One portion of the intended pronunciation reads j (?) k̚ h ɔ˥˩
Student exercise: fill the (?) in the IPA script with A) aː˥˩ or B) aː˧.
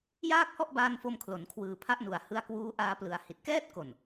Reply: A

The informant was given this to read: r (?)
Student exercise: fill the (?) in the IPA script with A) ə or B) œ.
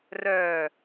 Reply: B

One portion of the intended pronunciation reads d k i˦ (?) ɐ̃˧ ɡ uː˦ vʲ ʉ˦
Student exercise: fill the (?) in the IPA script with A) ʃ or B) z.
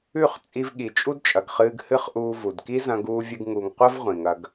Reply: B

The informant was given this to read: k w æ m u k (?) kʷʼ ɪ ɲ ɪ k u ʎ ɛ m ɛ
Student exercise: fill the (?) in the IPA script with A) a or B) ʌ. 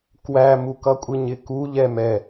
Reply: B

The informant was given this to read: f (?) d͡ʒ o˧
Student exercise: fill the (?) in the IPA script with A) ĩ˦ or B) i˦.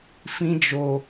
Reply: A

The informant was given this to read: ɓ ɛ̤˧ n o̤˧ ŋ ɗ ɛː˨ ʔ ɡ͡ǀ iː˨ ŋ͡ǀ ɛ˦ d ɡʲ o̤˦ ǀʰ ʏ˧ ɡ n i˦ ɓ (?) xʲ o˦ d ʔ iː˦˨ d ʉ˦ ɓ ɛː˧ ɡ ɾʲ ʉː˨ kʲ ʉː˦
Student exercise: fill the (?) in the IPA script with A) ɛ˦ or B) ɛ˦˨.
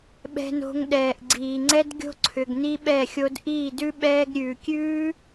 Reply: B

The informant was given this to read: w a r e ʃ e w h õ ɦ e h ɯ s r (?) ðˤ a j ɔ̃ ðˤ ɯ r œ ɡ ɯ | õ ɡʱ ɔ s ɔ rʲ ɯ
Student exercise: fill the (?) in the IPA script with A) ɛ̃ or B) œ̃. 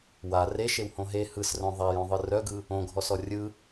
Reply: B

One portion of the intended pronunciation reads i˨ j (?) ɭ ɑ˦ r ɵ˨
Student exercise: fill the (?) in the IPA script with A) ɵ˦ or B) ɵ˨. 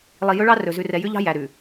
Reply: A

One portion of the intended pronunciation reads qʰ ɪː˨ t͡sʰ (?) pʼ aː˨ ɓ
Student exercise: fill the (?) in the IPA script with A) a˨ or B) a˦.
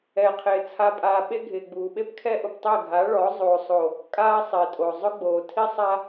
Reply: A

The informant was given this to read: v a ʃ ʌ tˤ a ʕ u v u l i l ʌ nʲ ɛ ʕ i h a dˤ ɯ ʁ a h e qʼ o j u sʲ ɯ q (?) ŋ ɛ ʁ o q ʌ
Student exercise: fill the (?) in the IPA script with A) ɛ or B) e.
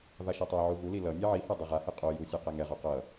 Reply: A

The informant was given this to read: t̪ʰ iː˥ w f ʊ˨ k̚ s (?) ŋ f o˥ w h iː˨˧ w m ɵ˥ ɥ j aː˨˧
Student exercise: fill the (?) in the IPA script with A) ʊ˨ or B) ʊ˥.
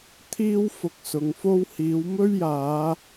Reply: A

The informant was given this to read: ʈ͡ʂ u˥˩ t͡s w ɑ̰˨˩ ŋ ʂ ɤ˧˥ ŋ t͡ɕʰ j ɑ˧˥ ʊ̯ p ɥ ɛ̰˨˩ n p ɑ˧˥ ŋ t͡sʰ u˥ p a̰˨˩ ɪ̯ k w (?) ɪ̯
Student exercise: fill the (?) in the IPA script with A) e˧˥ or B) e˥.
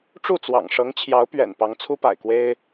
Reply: B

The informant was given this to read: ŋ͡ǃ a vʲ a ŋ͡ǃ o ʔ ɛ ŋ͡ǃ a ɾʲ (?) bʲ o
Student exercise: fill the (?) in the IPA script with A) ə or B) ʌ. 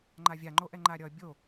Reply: B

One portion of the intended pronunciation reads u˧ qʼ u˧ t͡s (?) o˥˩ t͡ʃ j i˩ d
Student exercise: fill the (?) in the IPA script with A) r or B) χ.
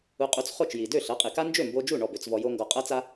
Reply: B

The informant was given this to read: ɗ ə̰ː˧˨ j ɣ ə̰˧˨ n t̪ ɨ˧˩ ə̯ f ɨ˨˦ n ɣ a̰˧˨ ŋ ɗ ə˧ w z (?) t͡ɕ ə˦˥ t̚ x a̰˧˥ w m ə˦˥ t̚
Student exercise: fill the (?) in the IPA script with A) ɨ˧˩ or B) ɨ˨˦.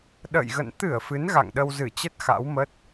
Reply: A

